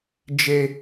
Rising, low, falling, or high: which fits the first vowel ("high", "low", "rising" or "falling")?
high